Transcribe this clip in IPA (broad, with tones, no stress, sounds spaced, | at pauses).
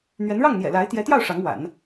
n̪ ɥ ɛ˧˥ n ɻ ɑ˥˩ ŋ n̪ j ɛ̰˨˩ l a˧˥ ɪ̯ t̪ j ɛ˧˥ t̪ j ɑ˥˩ ʊ̯ ʂ ɑ˧˥ ŋ w a̰˨˩˦ n